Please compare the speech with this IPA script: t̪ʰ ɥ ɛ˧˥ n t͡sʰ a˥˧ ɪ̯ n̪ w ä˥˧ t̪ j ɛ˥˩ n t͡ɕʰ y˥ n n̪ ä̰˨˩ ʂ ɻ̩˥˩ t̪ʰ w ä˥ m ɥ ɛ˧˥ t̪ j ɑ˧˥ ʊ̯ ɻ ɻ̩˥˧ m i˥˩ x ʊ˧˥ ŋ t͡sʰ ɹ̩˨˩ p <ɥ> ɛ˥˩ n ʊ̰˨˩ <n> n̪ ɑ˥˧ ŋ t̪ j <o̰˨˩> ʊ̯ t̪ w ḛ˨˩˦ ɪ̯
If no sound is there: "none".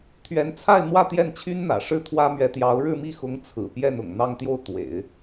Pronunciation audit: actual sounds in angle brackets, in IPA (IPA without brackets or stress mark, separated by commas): j, ŋ, o˥˩